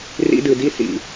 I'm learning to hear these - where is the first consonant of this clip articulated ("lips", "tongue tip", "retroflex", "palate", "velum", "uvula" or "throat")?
tongue tip